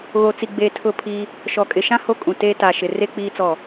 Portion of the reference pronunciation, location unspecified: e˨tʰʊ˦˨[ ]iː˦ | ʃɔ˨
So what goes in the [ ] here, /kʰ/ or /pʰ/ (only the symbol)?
pʰ